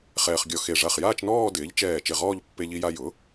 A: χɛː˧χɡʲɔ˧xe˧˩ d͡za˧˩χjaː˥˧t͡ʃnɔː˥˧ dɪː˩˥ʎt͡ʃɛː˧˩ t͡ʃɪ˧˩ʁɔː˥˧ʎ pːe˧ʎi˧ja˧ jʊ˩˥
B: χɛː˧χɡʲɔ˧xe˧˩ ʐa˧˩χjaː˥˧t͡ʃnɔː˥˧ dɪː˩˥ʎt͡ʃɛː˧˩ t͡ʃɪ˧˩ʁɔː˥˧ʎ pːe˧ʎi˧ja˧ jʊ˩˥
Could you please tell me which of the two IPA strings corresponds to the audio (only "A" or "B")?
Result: B